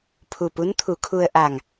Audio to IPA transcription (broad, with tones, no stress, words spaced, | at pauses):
pʰu˧˩pu˧˥n t̪ʰu˩˧kʰu˧ə̯ ʔa˧˩ŋ